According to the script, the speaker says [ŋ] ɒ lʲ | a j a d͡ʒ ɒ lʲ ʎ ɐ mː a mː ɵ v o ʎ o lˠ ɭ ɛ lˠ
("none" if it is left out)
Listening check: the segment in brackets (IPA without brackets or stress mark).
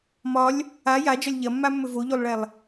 m